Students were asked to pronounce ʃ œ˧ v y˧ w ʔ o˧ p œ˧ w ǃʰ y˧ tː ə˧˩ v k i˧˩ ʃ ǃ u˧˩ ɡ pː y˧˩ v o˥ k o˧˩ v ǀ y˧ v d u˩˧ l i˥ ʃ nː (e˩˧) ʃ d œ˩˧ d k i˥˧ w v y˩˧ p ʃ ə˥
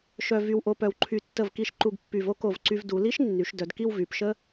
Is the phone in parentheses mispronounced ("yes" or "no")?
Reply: yes